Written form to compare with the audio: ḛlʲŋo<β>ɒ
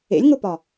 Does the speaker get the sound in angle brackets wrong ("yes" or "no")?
yes